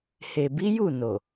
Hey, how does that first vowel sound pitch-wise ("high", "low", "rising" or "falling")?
low